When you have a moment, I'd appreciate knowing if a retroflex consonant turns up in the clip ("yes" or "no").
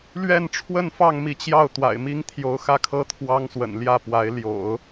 yes